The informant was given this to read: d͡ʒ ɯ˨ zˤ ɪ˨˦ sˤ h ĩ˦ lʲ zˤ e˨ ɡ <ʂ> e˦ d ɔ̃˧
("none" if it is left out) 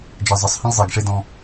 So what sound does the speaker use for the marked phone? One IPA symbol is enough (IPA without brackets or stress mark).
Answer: ʂ